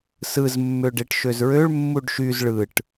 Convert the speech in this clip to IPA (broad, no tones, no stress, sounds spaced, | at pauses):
s ɯ z mː ø ɖ e ʈ ʃ ø z ɹ ø ɭ mː u ɖ ʃ y z ɭ ɯ ʈ